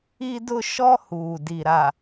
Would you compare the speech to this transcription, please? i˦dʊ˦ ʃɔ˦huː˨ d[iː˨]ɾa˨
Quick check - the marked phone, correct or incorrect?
incorrect